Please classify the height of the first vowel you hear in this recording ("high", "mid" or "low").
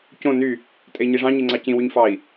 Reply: mid